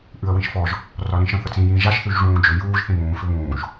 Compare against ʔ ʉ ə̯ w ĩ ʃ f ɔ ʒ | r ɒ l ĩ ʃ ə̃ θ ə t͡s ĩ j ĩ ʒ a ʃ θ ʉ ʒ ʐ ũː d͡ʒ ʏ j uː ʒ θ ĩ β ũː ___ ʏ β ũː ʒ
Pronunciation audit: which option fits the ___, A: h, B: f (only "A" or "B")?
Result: B